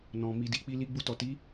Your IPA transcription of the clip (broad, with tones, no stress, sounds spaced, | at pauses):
n ɔ̃˨ m i˨ d i˨ k͡p i˧ l i˧ ɡ͡b u˧ t ɔ˨ t i˨˦